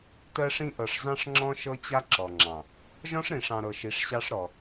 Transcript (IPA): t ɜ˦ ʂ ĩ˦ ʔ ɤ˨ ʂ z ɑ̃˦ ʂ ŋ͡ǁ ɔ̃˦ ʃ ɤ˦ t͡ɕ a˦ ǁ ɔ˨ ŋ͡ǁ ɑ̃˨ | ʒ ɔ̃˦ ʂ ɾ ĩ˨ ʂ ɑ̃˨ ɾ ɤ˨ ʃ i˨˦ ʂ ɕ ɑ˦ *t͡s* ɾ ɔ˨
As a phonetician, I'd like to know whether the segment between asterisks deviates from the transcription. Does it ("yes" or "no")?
yes